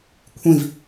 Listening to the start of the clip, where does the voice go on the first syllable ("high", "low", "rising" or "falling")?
falling